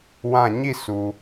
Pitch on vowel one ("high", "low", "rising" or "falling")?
falling